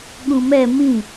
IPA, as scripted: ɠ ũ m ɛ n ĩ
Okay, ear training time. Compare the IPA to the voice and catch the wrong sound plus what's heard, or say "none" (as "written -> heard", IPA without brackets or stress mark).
n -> m